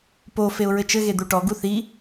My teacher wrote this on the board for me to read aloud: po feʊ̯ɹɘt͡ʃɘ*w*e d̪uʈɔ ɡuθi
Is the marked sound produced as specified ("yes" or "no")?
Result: no